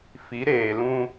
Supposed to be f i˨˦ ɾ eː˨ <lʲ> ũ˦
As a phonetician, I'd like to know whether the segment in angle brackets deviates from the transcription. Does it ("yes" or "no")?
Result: yes